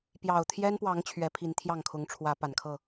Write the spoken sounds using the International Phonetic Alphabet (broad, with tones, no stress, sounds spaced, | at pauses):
p j ɑ˨˩ ʊ̯ t̪ʰ j ɛ˦ n p w ɑ˨˦ ŋ t͡ɕʰ ɥ ɛ˨˦ pʰ i˨˦ n t̪ʰ j ɑ˥˨ ŋ kʰ ʊ˨˦ ŋ ʈ͡ʂʰ w ä˨˦ p a˨˩ n kʰ ɤ˥˨